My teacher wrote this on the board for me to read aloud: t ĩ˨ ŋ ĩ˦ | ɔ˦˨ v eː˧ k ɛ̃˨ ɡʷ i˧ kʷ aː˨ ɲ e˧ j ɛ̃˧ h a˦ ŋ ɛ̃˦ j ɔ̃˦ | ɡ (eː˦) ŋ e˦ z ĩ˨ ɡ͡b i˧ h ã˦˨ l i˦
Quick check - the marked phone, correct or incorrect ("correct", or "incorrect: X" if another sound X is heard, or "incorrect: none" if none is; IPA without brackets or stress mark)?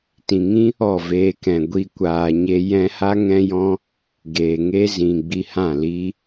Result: incorrect: eː˨